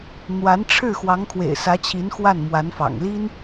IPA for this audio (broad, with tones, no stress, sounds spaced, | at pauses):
n̪ w a˧˥ n ʈ͡ʂʰ ɻ̩˥˩ x w ɑ˧˥ ŋ kʰ w ḛ˨˩ ɪ̯ s ä˧˥ t͡ɕʰ i˧˥ n x w a˥˩ n m w a˧˥ n f ɑ̰˨˩ ŋ l i˥ n